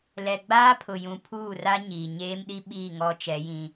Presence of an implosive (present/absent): present